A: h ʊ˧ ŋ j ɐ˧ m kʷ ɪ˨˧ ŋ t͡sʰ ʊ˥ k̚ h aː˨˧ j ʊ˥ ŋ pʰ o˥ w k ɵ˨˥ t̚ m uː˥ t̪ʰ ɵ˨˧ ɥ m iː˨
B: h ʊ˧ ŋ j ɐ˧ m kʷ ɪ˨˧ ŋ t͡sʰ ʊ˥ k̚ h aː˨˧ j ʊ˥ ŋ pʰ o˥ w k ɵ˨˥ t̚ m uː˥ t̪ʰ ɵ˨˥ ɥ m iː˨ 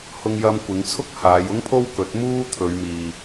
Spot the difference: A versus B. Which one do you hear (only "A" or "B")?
A